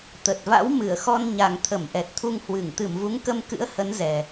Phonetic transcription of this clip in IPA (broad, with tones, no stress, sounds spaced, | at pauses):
t̪ ə˨˩ t̚ v a̰˧˥ w m ɨ˧˩ ə̯ x ɔ˧ n ɲ a˨˩ ŋ t̪ʰ ə˧˩ m ʔ ɛ˨˩ t̚ t̪ʰ u˧ ŋ h w ɨ˧˩ ŋ t̪ ɨ˧˩ m v u˨˦ ŋ k ə˧ m k ɨ̰˧˥ ə̯ h ə˨˦ n z ɛ˨˩